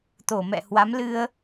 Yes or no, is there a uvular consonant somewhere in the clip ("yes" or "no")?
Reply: no